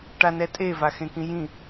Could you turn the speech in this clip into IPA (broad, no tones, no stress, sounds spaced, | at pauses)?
ʈ a n ɛ tʼ e v a x ẽ k ĩ j ĩ